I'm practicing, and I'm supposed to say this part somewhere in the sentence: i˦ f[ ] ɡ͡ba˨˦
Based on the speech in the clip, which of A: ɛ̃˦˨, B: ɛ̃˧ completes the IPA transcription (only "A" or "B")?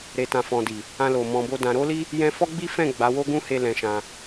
A